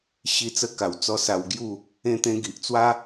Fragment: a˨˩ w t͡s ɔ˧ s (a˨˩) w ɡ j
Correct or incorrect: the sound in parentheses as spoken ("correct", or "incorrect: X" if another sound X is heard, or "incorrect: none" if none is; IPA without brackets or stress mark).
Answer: incorrect: a˧